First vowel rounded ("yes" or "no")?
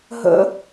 no